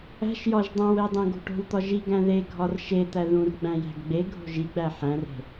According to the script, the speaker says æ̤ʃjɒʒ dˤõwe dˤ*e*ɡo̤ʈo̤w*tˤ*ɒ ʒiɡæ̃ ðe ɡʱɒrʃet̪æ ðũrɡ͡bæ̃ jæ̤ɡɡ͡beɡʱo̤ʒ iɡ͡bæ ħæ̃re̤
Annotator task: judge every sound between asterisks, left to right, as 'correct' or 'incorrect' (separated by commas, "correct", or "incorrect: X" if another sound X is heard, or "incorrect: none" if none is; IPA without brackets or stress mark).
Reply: incorrect: ẽ, incorrect: t̪